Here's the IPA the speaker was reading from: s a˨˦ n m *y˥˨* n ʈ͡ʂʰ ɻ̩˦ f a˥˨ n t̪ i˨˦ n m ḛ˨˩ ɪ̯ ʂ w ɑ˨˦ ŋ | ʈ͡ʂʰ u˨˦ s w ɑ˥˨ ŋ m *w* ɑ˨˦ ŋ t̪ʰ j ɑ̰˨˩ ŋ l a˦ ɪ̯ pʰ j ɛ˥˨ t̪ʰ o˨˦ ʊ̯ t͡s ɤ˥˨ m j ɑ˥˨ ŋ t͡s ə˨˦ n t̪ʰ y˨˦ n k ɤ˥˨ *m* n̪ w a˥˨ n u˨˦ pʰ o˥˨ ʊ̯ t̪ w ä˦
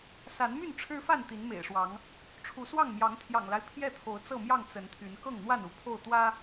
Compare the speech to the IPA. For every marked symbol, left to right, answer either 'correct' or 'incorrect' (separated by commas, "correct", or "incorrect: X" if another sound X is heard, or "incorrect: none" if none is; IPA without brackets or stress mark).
correct, incorrect: j, incorrect: ŋ